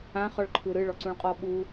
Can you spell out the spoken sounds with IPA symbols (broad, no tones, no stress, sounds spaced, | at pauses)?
ã χ ɔ ɭ ǃʰ ɯ ɾ ɯ ɭ ɔ ǀ ũ ɭ qʼ ɔ ɓ u